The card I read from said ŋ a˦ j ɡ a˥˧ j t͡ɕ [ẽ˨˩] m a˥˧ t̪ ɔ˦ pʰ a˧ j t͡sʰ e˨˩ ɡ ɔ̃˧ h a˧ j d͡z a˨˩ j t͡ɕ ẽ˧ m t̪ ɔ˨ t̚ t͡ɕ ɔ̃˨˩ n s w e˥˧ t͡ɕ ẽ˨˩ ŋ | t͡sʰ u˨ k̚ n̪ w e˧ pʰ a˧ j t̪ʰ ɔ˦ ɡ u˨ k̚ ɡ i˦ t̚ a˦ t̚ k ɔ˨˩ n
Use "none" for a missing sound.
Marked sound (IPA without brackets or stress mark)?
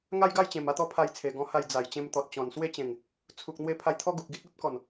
ẽ˨˩